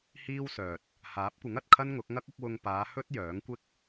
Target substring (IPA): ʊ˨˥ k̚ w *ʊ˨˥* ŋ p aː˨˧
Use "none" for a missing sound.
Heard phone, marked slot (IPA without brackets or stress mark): ʊ˧